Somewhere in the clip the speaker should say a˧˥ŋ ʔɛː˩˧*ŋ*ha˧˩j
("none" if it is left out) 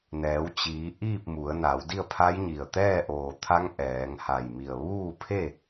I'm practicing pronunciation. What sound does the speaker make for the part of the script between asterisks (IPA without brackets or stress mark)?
ŋ